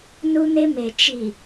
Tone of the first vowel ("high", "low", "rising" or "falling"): high